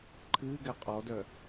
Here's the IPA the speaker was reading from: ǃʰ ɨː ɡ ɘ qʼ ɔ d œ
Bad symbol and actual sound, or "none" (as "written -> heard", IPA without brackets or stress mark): ɘ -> ɛ